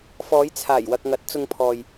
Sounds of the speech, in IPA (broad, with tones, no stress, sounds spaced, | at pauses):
f ɔː˨˧ j t͡sʰ aː˨˩ j w ɐ˨ k̚ ŋ ɐ˨˥ t̚ t͡s ʊ˧ ŋ pʰ ɔː˨ j